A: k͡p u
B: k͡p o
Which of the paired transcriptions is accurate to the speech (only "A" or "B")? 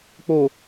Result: B